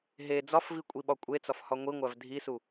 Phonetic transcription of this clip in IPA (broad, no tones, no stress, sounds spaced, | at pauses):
ɦ e d͡z ɒ f v i kʷʼ i ɓ ɒ kʷʼ e t͡s ɒ f h ɒ ŋʷ i ŋʷ æ v dʱ i s u